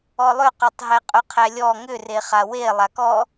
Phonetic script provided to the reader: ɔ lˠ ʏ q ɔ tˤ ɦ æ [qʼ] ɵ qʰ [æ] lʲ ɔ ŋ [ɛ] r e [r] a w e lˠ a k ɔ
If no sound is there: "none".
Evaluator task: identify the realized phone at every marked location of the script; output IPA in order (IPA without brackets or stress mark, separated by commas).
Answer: qʼ, æ, ʏ, χ